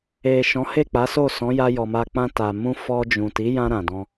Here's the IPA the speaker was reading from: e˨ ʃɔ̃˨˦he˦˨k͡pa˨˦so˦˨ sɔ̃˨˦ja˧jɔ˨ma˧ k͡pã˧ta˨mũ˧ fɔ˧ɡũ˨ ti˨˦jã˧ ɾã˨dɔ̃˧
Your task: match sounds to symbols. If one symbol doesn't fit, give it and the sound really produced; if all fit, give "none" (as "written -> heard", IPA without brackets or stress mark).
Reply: ɡ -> d͡ʒ